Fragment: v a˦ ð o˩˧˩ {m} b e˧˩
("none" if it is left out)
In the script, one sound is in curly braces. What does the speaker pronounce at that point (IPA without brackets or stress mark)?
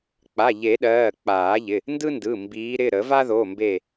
m